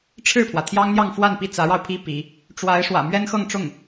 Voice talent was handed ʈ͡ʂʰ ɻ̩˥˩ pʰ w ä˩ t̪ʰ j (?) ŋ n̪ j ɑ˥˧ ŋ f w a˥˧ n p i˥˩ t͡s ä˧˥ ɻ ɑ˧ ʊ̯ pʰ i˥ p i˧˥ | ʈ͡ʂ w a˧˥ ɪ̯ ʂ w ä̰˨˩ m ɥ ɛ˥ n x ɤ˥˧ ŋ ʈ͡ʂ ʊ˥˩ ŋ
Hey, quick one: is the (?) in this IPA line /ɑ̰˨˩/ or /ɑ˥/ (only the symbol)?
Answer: ɑ˥